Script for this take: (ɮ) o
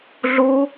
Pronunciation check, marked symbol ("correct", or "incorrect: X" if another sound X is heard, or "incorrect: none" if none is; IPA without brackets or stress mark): correct